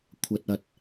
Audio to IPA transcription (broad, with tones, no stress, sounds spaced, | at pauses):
kʷʰ ɐ˨ t̚ ɐ˨ t̚